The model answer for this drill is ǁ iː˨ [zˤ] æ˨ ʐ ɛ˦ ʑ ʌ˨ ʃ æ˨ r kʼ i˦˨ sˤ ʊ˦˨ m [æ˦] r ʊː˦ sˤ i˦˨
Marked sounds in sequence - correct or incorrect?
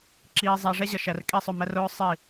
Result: correct, correct

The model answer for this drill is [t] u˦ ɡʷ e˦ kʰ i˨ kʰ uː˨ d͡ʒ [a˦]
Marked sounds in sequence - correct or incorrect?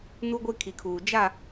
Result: incorrect: n, incorrect: a˦˨

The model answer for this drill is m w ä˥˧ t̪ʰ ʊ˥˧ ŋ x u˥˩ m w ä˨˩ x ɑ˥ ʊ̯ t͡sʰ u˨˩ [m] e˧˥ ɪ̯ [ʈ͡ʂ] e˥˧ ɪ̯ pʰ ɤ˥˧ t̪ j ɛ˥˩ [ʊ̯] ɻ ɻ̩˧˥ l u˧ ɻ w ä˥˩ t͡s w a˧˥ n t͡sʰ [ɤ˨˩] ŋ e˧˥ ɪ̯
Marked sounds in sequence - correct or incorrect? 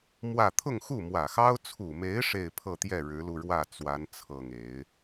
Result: correct, incorrect: ʂ, incorrect: none, correct

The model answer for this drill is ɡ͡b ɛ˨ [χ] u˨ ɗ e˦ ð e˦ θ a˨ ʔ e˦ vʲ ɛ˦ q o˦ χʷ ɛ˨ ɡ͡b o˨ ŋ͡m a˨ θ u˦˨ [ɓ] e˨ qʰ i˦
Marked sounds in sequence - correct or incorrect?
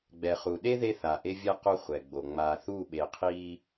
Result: correct, correct

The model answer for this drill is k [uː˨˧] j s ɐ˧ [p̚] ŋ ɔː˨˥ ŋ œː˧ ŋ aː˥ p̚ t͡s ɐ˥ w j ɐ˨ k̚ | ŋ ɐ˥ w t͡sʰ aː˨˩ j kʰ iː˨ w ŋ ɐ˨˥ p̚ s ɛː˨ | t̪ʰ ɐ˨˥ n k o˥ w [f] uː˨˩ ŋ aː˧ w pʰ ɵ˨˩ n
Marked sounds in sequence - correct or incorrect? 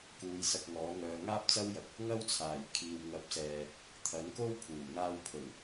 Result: correct, incorrect: k̚, incorrect: pʰ

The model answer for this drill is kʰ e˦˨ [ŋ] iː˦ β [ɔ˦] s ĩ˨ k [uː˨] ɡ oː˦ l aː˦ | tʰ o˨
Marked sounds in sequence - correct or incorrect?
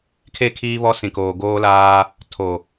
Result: incorrect: kʰ, correct, incorrect: oː˨

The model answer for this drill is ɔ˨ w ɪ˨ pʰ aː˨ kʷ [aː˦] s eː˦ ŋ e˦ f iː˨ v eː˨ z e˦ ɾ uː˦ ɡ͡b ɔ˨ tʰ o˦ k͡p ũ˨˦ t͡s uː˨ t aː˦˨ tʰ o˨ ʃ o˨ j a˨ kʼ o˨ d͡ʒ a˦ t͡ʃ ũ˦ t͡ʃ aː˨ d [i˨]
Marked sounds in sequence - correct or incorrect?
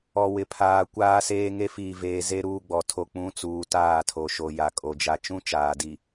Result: correct, correct

